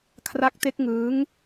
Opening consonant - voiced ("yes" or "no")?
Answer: no